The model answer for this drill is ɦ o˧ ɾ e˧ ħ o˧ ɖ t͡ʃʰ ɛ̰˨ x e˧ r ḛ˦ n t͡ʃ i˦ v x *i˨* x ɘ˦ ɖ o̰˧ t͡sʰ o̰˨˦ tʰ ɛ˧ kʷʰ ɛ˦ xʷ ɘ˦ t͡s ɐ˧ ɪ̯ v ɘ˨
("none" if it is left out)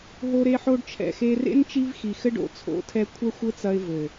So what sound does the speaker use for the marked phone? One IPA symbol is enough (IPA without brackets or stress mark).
i˨